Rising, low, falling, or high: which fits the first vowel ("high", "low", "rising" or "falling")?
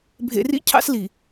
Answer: low